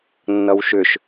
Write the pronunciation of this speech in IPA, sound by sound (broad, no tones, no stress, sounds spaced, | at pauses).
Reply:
nː ʌ w ʃ ʏ ʃ